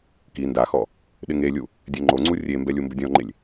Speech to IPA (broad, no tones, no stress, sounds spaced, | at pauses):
k i n d a x ɔ | ɗ ɪ ŋ e lʲ u | dʲ ɛ ŋ͡ǃ o ŋ͡ǀ u rʲ e m b ɛ lʲ u m b ʊ dʲ ɔ̃ ŋ͡ǃ e lʲ